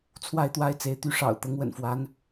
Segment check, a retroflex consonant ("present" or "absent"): present